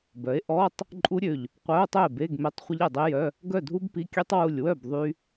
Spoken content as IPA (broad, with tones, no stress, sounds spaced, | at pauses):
b œ˩˥ e̯ ʔ ɔ˧˥˧ tˤ | ǃʼ u˦˥ ɾʲ ø˧˩ ʎ | qʷ œ˧˥˧ o̯ tˤ ø˥˩ e̯ b e˧˥˧ ɡ m e˧˥˧ tˤ χʷ ə˦˥ ʎ e˧˩ dˤ i˦˥ j œ˧˥˧ | ɡ œ˥˩ dʱ u˦˥ b p i˧˥˧ kʲ ø˦˥ tˤ w u˧˩ lʲ w œ˥˩ b ðˤ y˦˥